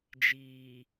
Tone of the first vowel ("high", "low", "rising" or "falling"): low